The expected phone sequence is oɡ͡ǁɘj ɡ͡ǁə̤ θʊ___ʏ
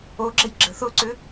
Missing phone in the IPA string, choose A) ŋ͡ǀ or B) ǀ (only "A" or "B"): B